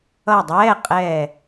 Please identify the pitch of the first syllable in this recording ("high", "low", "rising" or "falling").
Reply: falling